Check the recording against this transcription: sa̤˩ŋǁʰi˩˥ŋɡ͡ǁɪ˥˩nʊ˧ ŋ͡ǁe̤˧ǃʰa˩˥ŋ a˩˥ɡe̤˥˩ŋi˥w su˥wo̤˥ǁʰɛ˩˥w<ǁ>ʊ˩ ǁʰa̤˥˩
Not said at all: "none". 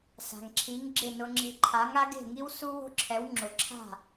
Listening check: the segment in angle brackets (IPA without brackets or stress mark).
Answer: ŋ͡ǁ